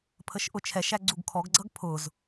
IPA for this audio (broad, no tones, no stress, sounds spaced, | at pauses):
pʰ ə ʃ ʔ ʊ t͡ʃʰ ɛ ʃ æ ɡ͡ǀ u ɡ kʰ ɔ ɡ ɡ͡ǀ ʌ ɡ pʰ ʊ z